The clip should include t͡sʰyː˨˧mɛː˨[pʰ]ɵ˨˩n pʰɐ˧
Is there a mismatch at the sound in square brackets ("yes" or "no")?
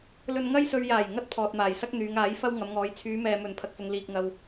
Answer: yes